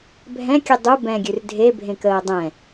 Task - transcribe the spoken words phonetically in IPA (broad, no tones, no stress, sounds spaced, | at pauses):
bʱ ɛ̃ kʲ ʉ dˤ u b ɛ̃ ɡʲ ʉ r dʱ e bʱ ẽ k əː dˤ ɛ̃